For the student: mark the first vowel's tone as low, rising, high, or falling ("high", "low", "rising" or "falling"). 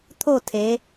falling